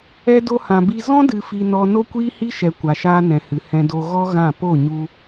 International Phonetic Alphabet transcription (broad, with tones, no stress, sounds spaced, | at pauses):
ɛ˦ d o˦ h ã˧ b i˦ z ɔ̃˦ d ɨ˧ f i˧ n ɔ˧ n o˦ kʷ iː˦ h i˦ ʃ ɛ˧ kʷ a˨ ʃ aː˧ n ɛ̃˨ h ɨ˨ h ɛ̃˧ d o˧ ɣ ɔ˦ ɣ ã˦˨ p o˦˨ ɲ u˧